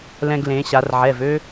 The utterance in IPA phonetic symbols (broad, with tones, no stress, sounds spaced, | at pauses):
l ɛ̃˧ ɡ l ẽ˩˧ ɕ a˩˧ r ʕ ɛ˩˧˩ v ø˧